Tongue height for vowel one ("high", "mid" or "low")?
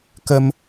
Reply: mid